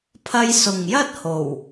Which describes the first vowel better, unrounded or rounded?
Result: unrounded